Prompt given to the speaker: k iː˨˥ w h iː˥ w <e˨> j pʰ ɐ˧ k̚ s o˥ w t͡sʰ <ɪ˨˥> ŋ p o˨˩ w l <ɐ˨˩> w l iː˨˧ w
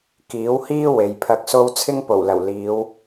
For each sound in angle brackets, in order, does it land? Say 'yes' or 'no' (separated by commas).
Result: yes, no, yes